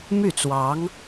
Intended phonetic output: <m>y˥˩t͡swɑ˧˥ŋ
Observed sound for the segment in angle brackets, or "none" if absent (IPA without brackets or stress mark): m